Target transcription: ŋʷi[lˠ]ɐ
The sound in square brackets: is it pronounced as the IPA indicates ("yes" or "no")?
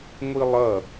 yes